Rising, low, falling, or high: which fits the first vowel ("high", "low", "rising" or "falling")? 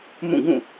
falling